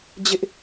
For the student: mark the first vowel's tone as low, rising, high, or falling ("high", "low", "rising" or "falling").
high